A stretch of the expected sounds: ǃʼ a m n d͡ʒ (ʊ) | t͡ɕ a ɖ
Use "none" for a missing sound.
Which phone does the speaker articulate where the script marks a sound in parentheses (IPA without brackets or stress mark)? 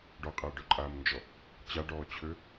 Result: ɔ